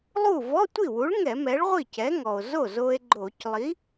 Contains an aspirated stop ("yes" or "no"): no